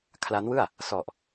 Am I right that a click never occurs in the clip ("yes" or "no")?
yes